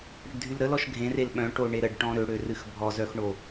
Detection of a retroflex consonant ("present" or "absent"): present